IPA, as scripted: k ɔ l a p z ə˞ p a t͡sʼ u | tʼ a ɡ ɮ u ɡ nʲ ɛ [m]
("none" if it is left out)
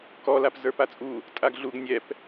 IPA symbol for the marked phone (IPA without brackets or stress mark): p